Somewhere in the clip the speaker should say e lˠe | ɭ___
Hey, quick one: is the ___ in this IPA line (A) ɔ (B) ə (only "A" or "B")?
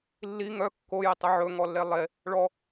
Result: A